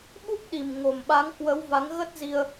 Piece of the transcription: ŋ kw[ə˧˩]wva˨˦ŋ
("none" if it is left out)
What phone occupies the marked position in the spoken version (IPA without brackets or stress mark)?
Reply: ə˨˦